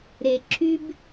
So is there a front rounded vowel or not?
yes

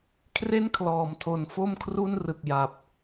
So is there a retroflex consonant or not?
no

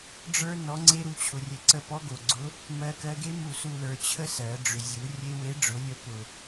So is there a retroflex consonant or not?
yes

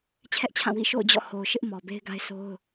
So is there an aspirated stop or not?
yes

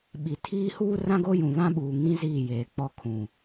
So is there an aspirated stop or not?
yes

